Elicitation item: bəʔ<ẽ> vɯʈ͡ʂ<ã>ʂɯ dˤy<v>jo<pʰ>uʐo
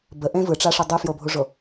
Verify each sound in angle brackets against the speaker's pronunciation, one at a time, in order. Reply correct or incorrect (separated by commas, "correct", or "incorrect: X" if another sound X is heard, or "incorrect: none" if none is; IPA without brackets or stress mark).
correct, incorrect: a, incorrect: f, incorrect: bʱ